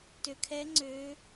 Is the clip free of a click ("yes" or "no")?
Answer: no